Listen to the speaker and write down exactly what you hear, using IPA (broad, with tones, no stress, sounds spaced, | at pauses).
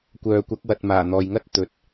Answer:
kʷ œː˨ kʷ ɐ˨˥ k̚ w ɐ˨ t̚ m aː˨˩ n̪ ɔː˨ j ŋ ɐ˥ t̚ t̪ ɵ˨ t̚